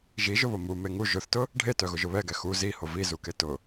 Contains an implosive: no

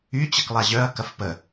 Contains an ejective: no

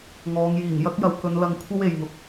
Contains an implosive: no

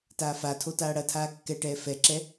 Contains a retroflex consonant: yes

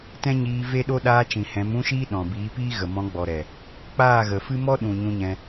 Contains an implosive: yes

